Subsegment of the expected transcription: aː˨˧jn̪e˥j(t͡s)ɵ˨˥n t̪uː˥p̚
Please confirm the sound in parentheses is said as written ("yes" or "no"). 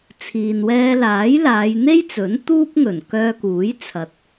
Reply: yes